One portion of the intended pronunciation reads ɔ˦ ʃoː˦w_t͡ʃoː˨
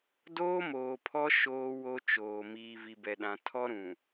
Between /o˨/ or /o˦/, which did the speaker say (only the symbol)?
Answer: o˦